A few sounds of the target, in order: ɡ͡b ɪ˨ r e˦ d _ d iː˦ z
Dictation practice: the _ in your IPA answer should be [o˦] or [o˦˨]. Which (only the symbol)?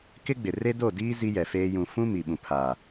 o˦˨